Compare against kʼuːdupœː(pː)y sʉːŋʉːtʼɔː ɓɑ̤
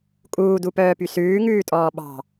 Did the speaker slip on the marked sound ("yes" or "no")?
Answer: yes